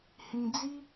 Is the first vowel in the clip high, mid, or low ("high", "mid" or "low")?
high